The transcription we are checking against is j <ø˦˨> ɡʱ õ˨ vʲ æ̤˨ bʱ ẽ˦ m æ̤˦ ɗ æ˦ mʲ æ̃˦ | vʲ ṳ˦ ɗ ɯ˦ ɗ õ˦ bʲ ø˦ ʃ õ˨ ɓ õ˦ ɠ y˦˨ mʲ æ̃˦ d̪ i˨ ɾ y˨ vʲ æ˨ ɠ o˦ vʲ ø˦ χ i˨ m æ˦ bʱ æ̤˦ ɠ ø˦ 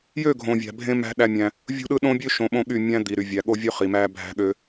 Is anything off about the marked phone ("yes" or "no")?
no